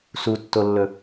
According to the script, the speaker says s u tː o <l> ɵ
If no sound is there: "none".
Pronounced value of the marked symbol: lː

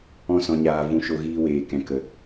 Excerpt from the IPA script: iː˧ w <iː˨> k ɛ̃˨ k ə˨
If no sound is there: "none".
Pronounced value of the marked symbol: eː˨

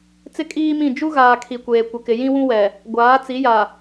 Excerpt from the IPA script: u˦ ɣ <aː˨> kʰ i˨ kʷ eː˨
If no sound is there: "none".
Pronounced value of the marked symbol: aː˨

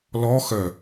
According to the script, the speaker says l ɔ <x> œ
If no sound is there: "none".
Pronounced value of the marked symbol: x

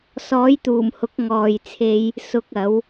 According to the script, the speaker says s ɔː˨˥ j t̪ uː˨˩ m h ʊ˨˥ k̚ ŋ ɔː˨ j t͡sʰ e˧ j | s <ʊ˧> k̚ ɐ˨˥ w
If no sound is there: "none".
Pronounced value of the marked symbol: ʊ˧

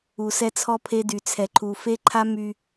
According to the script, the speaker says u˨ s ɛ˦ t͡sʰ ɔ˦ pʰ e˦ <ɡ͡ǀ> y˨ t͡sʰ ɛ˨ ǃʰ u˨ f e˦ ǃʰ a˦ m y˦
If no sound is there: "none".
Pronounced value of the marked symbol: d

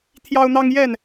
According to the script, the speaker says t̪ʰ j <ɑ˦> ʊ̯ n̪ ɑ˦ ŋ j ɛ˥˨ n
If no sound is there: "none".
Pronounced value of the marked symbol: ɑ˦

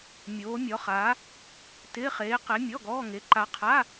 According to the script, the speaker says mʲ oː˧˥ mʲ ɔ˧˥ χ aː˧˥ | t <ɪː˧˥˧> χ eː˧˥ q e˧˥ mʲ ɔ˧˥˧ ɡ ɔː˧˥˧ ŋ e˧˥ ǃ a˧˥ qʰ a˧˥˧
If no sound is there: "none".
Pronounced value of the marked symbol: ɪː˧˥˧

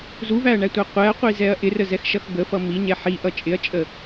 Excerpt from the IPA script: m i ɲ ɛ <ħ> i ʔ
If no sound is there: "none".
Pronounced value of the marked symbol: ħ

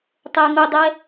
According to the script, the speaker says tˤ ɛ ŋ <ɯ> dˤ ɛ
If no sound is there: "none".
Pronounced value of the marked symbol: ʊ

